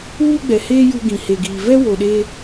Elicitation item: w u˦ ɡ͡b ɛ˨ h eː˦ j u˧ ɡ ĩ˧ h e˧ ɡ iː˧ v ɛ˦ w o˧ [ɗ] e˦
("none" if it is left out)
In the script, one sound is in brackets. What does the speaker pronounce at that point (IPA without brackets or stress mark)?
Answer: ɗ